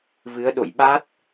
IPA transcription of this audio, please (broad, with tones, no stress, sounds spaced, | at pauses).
v ɨ˨˦ ə̯ ɗ o̰˧˨ j ɓ a˦˥ t̚